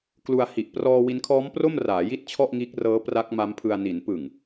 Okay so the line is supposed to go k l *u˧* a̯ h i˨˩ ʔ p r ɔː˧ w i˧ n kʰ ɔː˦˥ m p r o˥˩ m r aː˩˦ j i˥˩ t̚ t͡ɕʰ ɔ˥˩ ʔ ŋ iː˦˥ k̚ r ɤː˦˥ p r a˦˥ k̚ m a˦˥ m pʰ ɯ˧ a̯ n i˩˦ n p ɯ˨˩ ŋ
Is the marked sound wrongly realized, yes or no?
no